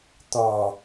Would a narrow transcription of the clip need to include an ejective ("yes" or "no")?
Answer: no